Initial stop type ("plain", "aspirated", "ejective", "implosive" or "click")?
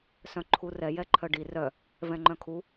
click